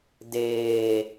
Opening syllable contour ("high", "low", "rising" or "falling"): low